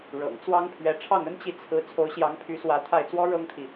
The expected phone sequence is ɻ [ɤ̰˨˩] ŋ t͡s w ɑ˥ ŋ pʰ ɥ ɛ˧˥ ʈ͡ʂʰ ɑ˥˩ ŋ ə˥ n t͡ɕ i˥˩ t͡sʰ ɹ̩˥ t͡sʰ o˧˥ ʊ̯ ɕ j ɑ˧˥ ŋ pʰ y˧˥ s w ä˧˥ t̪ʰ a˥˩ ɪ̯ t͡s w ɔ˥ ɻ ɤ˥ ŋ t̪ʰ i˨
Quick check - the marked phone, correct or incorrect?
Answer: correct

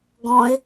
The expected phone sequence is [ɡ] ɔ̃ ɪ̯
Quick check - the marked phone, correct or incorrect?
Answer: correct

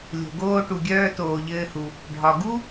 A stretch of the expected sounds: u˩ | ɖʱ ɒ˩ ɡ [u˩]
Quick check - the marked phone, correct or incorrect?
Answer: incorrect: u˥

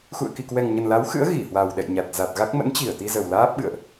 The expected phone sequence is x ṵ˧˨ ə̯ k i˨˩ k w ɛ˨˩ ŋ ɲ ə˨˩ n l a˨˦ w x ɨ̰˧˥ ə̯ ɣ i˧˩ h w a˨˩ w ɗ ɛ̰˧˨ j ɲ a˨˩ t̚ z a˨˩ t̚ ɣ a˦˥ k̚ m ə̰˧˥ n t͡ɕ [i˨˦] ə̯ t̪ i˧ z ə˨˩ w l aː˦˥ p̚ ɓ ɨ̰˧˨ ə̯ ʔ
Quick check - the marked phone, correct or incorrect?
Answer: incorrect: i˧˩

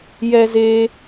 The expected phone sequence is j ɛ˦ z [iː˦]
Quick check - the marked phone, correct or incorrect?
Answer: incorrect: eː˦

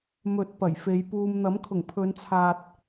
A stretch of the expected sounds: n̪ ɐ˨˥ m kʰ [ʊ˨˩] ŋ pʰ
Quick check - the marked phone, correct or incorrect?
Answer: correct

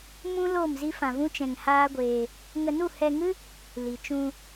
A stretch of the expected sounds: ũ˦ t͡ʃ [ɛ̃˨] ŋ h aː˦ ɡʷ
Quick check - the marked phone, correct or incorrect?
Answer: incorrect: ɛ̃˧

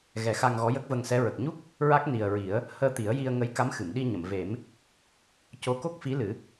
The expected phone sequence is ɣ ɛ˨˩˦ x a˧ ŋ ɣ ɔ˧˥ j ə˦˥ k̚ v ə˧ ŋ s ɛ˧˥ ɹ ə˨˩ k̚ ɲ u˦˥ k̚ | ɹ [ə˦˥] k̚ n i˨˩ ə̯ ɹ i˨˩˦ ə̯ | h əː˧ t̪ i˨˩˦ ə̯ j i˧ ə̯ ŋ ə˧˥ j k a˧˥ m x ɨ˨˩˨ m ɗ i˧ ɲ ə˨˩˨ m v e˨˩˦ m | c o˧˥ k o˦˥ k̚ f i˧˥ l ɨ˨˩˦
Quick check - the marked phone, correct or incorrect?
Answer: incorrect: a˦˥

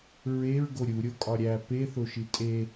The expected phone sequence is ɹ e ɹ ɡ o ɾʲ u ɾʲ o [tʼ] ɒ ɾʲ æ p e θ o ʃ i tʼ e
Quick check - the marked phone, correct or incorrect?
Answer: incorrect: kʼ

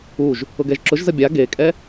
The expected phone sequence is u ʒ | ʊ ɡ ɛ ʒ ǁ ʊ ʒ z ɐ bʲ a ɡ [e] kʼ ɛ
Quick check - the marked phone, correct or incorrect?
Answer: correct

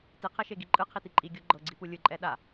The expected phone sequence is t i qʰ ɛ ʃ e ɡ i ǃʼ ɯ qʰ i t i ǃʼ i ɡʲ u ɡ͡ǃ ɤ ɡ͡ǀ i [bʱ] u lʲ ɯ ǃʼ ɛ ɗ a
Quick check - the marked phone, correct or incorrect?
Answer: incorrect: p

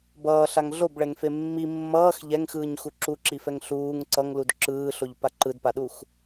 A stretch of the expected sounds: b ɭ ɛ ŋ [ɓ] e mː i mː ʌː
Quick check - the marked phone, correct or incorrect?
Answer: incorrect: f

